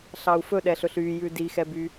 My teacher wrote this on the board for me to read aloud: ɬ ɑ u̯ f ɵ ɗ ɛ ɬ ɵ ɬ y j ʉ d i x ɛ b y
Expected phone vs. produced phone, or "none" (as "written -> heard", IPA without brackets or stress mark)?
none